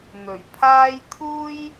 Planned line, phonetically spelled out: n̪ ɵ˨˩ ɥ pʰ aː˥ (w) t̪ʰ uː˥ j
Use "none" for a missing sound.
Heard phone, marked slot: j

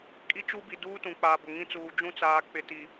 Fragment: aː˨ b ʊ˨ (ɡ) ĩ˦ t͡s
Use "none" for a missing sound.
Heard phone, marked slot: ŋ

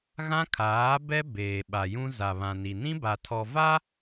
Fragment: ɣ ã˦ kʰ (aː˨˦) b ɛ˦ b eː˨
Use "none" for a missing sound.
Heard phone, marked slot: aː˨˦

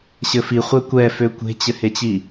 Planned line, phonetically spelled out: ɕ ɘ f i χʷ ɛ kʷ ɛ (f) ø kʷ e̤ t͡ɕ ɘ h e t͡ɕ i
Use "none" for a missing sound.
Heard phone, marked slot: f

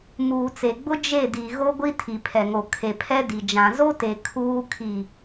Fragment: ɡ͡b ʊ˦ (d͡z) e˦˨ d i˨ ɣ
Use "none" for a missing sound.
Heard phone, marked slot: d͡ʒ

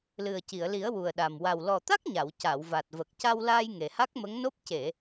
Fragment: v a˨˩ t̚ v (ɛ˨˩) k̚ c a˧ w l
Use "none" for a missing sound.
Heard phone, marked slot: ə˨˩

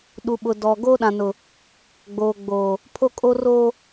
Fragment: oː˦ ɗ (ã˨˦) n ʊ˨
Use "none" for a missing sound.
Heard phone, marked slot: ã˨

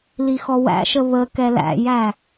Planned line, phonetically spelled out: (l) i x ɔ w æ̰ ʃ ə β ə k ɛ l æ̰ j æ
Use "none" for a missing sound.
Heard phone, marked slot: l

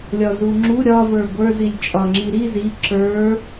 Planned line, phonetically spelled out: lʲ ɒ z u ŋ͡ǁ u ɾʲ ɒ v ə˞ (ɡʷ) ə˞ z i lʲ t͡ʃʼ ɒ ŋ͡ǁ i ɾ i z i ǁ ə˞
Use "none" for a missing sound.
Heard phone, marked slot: ɡʷ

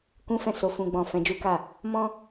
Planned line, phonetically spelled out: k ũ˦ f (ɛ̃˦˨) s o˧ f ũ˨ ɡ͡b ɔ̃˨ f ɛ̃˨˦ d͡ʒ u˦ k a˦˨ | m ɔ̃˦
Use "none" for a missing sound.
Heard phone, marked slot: ɛ̃˦˨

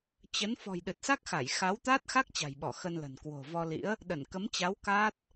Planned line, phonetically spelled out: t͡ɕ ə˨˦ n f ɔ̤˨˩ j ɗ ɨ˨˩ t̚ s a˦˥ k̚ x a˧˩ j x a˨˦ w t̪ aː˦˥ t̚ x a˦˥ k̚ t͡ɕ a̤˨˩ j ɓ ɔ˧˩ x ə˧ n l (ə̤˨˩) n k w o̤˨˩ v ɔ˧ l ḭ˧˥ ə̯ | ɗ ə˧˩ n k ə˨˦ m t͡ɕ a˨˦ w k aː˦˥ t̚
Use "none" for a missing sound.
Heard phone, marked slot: ə̤˨˩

